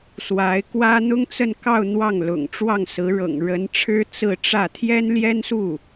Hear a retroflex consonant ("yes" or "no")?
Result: yes